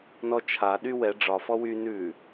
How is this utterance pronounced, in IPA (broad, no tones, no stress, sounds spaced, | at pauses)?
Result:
n ɔ t͡ʃʰ a ɗ y w ɛ ɖ͡ʐ ɒ f ɔ w y n ʉ